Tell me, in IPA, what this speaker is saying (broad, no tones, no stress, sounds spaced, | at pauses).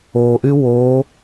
o ʔ y w o